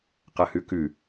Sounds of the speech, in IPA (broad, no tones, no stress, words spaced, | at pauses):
qɐhʉkʉ